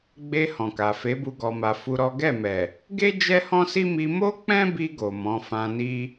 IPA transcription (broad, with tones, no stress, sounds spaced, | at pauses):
ɡ͡b e˧ h ɔ̃˨ k a˨ f e˨˦ b u˧ ɡ ɔ˨ m a˨ f u˧ ɾ ɔ˦ ɡ ɛ˦˨ m ɛ˨ | ɡ e˦ d͡ʒ ɛ˦ h ɔ̃˦ s i˦ m i˧ m o˦ k͡p ɛ̃˦ b i˧ ɡ o˨ m ɔ̃˨˦ f ã˧ n i˦